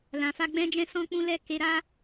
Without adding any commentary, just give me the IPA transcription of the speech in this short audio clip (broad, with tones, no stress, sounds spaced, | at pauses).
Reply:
l ã˨ f a˧ ɡ͡b ɛ̃˦ d͡ʒ ɛ̃˦ s ɔ̃˦ k͡p ũ˦ l ɛ˦ k e˧ ɾ aː˦